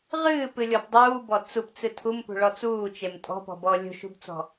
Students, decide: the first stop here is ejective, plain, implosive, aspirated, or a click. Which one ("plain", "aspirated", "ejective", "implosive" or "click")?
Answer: plain